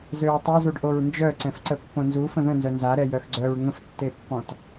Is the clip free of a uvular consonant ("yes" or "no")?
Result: yes